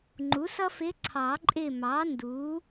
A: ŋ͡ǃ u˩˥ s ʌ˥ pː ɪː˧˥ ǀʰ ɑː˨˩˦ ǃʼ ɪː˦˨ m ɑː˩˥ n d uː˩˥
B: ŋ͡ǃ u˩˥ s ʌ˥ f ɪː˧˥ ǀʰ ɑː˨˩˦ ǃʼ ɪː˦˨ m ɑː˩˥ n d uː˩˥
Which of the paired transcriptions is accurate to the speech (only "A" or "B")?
B